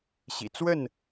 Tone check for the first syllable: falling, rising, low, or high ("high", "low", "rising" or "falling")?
low